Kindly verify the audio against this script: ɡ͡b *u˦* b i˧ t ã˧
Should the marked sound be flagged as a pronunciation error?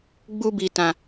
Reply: no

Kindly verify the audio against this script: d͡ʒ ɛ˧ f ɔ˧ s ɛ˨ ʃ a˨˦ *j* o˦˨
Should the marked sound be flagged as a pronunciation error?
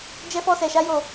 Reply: no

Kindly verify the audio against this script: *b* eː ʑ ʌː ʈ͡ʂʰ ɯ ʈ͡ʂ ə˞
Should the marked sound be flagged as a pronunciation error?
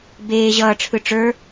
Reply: no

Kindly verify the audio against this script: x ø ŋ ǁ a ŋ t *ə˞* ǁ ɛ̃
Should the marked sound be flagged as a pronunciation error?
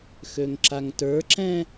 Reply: no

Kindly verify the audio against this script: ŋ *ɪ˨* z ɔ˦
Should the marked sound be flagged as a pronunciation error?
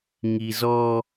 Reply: yes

